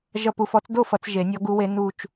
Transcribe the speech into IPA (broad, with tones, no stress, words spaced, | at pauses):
ʒʌ˦˨pu˦˨fɔ˧˥t͡s do˦˨ fʌ˧˥t͡sʒe˨˩˦nʲɔ˧˥ ɡu˧˥we˧˥ nu˦˨t͡ʃ